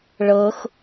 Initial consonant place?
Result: retroflex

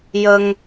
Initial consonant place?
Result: palatal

